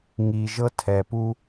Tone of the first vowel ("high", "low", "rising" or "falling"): low